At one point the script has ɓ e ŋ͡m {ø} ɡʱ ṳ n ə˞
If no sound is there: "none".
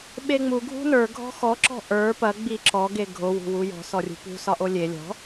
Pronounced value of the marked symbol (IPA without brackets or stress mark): u